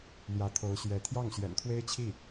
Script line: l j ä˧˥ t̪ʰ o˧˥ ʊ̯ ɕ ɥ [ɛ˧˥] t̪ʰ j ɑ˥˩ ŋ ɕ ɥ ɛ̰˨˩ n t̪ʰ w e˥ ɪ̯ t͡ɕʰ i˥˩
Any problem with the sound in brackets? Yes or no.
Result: no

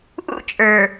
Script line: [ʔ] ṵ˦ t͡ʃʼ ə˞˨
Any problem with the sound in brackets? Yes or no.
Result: no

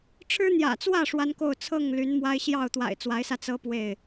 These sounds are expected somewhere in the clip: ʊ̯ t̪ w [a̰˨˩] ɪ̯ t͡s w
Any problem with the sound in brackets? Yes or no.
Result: no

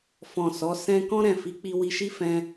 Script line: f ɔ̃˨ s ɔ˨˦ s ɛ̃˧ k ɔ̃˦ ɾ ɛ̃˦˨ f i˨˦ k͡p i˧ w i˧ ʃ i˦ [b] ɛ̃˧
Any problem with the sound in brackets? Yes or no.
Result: yes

